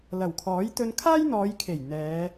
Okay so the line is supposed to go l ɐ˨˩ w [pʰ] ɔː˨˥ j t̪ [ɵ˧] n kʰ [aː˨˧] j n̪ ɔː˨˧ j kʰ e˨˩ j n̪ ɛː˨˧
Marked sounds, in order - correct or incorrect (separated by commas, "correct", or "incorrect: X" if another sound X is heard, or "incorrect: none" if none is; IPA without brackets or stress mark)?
incorrect: kʰ, correct, incorrect: aː˥